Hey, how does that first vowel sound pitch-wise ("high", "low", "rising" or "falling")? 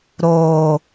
low